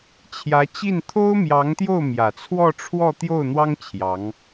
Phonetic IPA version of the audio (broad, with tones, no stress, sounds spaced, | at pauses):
t͡ɕʰ j ä˧˥ t͡ɕ i˥˩ n t̪ʰ o˥ ʊ̯ m j ɑ˧˥ ŋ t̪ j o˥˩ ʊ̯ m j ä˨˩ t͡sʰ w ɔ˥˧ ʈ͡ʂʰ w ɔ˥˧ t̪ j o˥˩ ʊ̯ n̪ w ɑ˥ ŋ t͡ɕʰ j ɑ˧˥ ŋ